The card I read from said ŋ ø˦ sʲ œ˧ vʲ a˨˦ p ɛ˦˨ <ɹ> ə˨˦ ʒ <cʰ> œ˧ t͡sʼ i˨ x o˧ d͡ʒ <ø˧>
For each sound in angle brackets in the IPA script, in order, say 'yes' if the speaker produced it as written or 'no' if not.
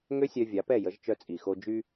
no, no, no

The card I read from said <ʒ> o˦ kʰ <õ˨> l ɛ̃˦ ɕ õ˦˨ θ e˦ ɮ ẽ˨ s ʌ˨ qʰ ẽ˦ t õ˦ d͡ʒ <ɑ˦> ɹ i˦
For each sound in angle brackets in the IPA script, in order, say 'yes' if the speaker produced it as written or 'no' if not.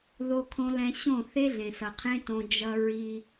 no, no, no

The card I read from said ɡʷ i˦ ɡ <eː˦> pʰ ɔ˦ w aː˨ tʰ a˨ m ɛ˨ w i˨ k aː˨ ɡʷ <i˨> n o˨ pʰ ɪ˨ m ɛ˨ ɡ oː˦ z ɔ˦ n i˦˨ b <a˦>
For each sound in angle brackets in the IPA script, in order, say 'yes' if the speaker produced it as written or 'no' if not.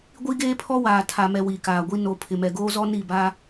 yes, no, yes

